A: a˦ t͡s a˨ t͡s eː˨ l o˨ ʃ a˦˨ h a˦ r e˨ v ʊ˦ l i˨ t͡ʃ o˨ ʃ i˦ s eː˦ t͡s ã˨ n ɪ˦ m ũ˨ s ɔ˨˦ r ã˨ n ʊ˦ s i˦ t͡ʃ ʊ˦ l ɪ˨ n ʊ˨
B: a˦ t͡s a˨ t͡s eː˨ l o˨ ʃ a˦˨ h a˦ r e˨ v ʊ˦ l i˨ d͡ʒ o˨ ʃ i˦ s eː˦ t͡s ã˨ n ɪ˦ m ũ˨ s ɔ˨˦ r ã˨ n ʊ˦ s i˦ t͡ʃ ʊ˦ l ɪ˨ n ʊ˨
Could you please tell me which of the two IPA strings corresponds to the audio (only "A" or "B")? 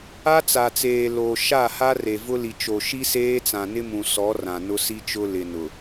A